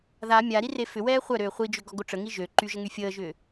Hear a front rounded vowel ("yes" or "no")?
yes